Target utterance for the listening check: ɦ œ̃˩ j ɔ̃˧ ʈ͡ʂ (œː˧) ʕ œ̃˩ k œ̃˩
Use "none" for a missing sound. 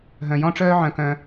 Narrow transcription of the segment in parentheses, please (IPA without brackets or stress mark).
œː˧